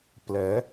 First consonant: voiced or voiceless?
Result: voiceless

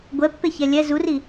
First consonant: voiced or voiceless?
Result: voiced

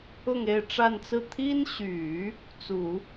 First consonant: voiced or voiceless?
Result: voiced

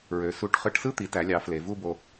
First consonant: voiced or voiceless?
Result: voiced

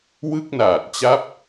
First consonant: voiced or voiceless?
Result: voiced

